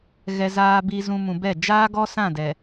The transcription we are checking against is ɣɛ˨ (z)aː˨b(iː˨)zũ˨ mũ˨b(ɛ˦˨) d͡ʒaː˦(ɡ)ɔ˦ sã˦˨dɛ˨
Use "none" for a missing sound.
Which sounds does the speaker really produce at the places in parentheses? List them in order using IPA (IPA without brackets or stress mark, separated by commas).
z, iː˨, ɛ˦˨, ɡ